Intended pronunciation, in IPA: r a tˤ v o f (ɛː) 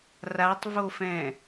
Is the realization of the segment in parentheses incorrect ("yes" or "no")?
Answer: yes